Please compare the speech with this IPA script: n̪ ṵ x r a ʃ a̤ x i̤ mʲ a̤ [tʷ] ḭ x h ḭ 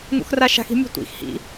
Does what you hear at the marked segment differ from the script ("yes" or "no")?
no